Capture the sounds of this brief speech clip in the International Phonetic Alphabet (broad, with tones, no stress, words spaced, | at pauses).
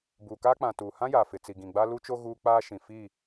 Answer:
buː˨kaː˦k͡pã˨ tuː˨hã˦jaː˨ fɪ˨t͡si˨ ɡĩ˨ɡ͡ba˦lu˦t͡ʃo˦ ɣuː˦k͡paː˦ ʃĩ˨ fi˦˨